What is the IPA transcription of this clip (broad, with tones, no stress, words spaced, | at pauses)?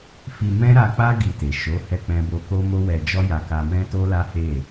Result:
fi˧mɛ̃˦ɾa˧k͡pa˦ ɡi˧te˨ ʃo˨˦ hɛ˦ k͡pɛ̃˦bo˦ ko˦mo˦wɛ˧d͡ʒɔ˦ ja˧ka˧ mɛ̃˦to˦la˦ he˦˨